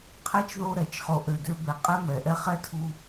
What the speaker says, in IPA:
qʰ ɛ˥ t͡ʃ ð o˦ ɾ ɛ˩ t͡ʃ χ o˨ ʔ ø˨ d ø˦ b ɛ˨ qʼ ɛ˥ m ɛ˩ ʔ ɛ˥ χ ɛ˥ tʰ u˦

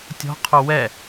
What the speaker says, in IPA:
tʲ ɔ̤ qʰ o w ɛ

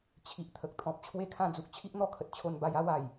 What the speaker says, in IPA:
t͡ɕʰ i˨ ʔ t̪ʰ ə˨ k̚ t̪ʰ ɔ̃˨ p̚ t͡ɕʰ w e˥˧ kʰ ã˥˧ d͡z u˨ k̚ t͡ɕʰ i˦ ʔ n̪ ɔ˦ kʰ ə˨ t̚ t͡ɕʰ o˧ n b a˧ j a˦ w a˨˩ j

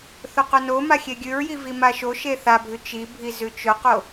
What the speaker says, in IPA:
θ ɵ q ɵ n o m a xʲ e ɡʲ ʉ ɹ j i v i m a ʃ o ʃ e θ a bʱ ʉ t͡ʃ i bʱ i z ʉ t͡ʃ ɵ q o

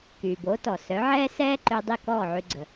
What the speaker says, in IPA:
k yː˩ b oː˩˥ t ɔ˩ s œ˩˥ ʕ ɛː˥ s ɛː˥ ǃ ø˧ dˤ i˥˩ k ɔː˥˩ ʕ y˧ ɡ͡ǀ ə˩

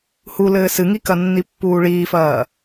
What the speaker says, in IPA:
h u l ɘː s ɨ ŋ i k ɐ nː i pː uː ɭ iː f ɐː

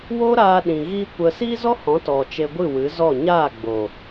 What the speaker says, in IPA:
w o˦ ɾ aː˧ ɗ ĩ˨ ɣ iː˦ kʷ ə˧ s iː˦ z ɔ˦ h ɔ̃˨˦ t ɔ˨ t͡ʃ e˧ ɡʷ ɨ˦˨ w ɨ˨˦ z ɔ˦˨ ɲ aː˦˨ ɡ͡b o˨

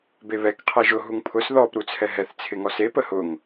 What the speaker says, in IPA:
b e β ɛ k qʰ ɛ ʒ ʊ ɦ u ŋ pʰ ʊ s ð ɔ p ɾ u t͡sʰ ɛ ɦ ɛ θ t͡sʰ ɪ ŋ ɔ s e p ə h ʊ ŋ

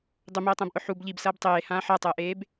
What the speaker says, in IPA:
dˤ ʊ m eː tˤ ə̃ː b ʔ ʊ ħ u b ʎ i b s ɐː b tˤ eː h ãː ħ ɐ tˤ əː ʔ eː b

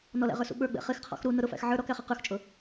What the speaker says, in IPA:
n ɔ l æ̰ ʁ ə˞ s ṵ ɓ ə˞ ɡ͡b ɛ̰ χ ɪ x qʰ ɔ̰ x ɾ u n ʊ ɾ ʊ f æ̰ x ʕ ə˞ ɾ ɔ k æ χ ʌ q ə˞ x t͡ʃʼ ʊ

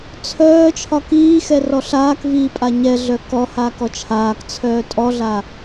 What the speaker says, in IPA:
t͡sʰ œː t͡ʃʰ ɒ k iː x ɛ r ɔ ɬ aː k v iː pʼ a ɲ ɛ ɮ œ k ɔ h aː k ɔ t͡ʃʰ aː k t͡sʰ œː tʼ ɔ ɮ a

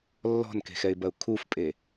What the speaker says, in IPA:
lː ɔ̤ n k e̤ x ɛ ɪ̯ b ɐ ʊ̯ kʰ u f pʼ e

